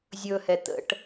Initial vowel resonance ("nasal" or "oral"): oral